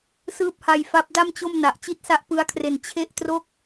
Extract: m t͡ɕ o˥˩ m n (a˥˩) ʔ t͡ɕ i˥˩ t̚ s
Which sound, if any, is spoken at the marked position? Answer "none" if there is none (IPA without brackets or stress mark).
a˨˩